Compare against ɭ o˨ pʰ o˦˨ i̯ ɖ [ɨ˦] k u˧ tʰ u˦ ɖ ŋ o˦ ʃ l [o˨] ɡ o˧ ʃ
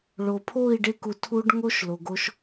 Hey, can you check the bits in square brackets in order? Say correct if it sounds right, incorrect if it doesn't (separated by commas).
incorrect, correct